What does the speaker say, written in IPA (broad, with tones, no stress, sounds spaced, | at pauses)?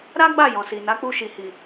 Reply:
ɾ a˦ ɡ͡b a˦˨ j ɔ̃˨ s i˨ n a˨˦ k͡p u˧ ʃ i˨ h i˨